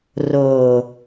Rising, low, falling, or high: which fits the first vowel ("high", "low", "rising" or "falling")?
low